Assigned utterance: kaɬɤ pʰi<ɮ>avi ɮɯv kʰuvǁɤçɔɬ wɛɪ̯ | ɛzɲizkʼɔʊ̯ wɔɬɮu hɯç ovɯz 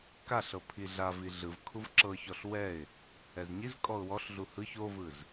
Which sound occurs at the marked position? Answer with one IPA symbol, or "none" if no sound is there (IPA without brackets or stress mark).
ɮ